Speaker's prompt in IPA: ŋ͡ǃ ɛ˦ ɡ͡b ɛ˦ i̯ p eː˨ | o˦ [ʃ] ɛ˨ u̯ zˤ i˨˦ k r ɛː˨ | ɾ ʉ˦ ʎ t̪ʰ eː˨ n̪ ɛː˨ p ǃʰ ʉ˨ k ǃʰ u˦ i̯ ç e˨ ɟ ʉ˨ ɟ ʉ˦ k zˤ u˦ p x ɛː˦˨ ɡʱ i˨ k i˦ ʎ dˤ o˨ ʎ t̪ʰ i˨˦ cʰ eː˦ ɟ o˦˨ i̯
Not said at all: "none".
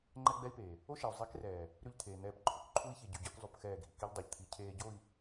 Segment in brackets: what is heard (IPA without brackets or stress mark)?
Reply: ʃ